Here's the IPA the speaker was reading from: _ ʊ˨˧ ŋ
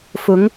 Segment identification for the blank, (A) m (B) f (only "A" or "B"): B